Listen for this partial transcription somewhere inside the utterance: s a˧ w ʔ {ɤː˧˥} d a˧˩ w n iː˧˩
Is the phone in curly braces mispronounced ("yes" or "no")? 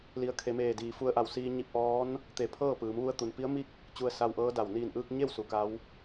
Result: no